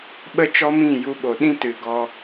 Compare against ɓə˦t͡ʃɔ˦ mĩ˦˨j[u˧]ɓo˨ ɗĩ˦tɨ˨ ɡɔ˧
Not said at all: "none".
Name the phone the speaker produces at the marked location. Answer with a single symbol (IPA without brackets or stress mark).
u˧